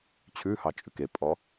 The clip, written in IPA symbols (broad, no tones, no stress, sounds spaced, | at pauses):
t͡ɕʰ ʉ h ɑ t͡ʃʼ ʉ k e pʼ ɔ